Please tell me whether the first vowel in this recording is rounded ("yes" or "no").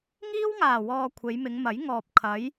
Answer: no